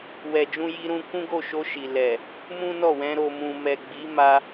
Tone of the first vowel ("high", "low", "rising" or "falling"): low